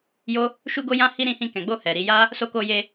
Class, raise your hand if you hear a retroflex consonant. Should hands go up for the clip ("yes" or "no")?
no